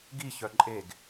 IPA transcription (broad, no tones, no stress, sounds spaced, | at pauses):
ɡ i ç œ ǃʼ e ɡ